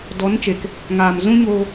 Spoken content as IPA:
d ɔ˨˦ n t͡ʃ e˨ k | ŋ aː˨ m z ũ˦ ɲ oː˧

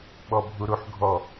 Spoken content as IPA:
ɓ ɔ bʱ u ɾ u ħ ɡʱ ɔ

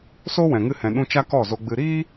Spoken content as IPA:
s o˦ w ɛ̃˨ ŋ ɨ˧ h ɛ̃˨ ɗ ũ˧ t͡ʃ a˦ k ɔ˦˨ z o˧ ɡ͡b ɨ˧ ɾ iː˦

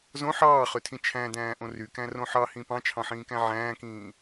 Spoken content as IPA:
z õ ħ ɑː χ ø tʰ ĩ t͡ʃʰ æ̃ d æ̃ː ʔ õ r y k æ̃ r õ ħ ɑ h ĩ p ɑ̃ t͡ʃʰ ɑ̃ ħ ĩː k æ̃ ʕ æ̃ː k ĩː

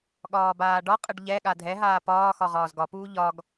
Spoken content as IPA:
ɠ ɒː b aː ɖ ɒ qʼ ə ɖ ʎ ɛ ɠ a dʱ ɛ ɦ aː p ɒː x ɒ ʁ ɒː z ɡ ɒ p uː ʎ ɒ ɡ

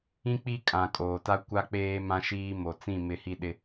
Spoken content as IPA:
ĩ˦ k͡p i˦ kʼ ã˨ kʼ oː˨ t a˦ kʷ a˦ k͡p eː˦ m ã˦ ʃ iː˦ m o˨ t͡s ĩ˦˨ m ɪ˦˨ h i˦ ɗ ɪ˦

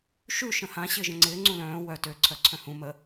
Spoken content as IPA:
ʃ ʉ ʃ ə̃ h ã ɕ ɪː ʒ ə̃ ŋ͡ǀ ɪː ŋ͡ǀ ũ l œ̃ː w œ t ø ǀʰ œ ǀʰ œ̃ h ũ m ə

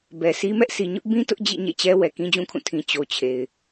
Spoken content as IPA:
b ɛ˨ s i˦ m ɛ˦ ʔ sʰ i˨ ɲ ʊ˦ ʔ b ĩ˦ t ʊ˦ ʔ d͡ʑ ḭ˦˨ ɲ ḛ˦˨ t͡ɕ ɛ˦ w ɛ˨ k ĩ˦ d͡ʑ ũ˦ kʰ ũ˦˨ tʰ ĩ˨ t͡ɕ o˨ t͡ɕʰ e˨ ɪ̯

